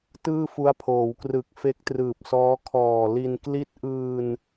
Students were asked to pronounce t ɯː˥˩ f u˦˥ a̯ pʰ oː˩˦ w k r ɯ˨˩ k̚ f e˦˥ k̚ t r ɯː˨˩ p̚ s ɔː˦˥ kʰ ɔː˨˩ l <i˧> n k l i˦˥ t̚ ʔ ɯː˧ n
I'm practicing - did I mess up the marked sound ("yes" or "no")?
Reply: no